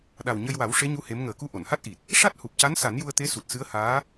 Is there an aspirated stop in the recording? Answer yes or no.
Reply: no